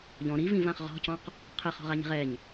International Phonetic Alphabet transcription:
ʎ ɔ̃ ɾ i v ĩ v ã χ ʁ ɔ̤ c ɔ̃ q | qʰ ɛ χ ɔ̤ ʁ a ɲ i̤ ʁ ɛ ɲ

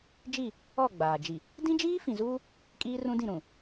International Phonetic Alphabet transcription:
d͡ʒ i˦˨ | ɔ˦˨ ɡ͡b aː˨ d͡ʒ i˨ | d ĩ˦ d͡ʒ iː˦ f ĩ˨ z uː˦ | kʼ iː˦ r ũ˦ d ĩ˦˨ ɾ ũ˨

